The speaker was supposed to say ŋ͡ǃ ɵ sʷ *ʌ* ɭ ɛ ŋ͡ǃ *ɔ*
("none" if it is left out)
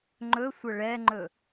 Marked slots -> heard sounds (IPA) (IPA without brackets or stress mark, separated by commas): ʌ, ɵ